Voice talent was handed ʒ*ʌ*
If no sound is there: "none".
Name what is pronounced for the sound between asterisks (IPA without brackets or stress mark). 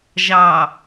ɑ